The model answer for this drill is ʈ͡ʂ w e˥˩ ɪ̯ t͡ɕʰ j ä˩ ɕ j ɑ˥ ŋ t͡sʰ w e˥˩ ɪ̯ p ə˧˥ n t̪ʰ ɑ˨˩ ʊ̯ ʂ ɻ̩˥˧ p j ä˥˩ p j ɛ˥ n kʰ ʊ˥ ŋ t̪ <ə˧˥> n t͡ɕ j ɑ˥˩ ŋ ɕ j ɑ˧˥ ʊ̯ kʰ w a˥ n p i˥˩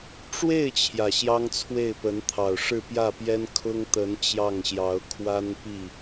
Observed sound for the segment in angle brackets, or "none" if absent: ə˧˥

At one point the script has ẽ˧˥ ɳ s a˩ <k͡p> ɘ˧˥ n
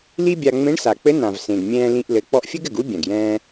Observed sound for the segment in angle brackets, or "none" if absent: k͡p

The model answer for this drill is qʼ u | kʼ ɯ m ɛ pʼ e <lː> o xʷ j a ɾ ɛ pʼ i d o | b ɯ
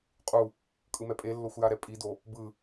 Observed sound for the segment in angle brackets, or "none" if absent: lː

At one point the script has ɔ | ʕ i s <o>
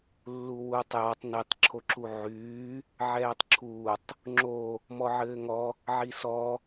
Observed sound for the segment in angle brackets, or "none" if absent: ɔ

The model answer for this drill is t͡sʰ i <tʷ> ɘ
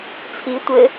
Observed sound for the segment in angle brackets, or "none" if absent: tʷ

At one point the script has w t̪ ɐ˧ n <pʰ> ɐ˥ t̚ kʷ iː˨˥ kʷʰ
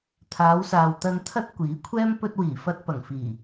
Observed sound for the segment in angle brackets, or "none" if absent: t̪ʰ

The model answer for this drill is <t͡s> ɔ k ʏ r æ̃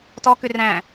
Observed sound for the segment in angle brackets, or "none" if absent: t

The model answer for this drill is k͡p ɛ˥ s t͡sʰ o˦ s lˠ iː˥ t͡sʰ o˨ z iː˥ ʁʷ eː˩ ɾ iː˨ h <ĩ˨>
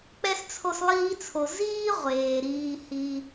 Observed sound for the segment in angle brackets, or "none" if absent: i˨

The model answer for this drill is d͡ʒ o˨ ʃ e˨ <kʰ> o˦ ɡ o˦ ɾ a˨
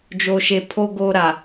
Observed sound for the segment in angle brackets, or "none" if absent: pʰ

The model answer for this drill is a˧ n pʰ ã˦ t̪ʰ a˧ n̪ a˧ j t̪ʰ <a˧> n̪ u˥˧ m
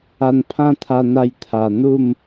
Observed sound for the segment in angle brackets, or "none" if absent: a˨˩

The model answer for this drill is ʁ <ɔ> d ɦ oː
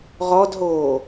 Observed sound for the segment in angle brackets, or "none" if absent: ɔ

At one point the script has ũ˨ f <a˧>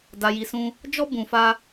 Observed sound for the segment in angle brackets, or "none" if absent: a˧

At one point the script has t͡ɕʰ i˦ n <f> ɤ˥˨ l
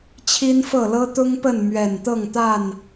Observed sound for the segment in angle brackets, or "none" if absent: f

